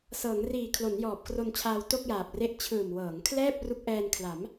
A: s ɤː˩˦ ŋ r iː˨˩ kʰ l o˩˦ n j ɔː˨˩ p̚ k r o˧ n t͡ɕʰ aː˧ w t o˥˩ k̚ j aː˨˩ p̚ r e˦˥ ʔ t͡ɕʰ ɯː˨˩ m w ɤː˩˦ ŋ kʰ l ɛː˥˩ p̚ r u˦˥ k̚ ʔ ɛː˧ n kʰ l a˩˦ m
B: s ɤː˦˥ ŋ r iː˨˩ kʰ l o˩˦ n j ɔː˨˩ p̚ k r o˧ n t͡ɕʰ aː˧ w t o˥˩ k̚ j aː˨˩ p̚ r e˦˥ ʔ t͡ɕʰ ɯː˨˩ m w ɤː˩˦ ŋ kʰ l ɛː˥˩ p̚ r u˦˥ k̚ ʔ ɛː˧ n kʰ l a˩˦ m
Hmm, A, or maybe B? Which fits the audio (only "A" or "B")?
A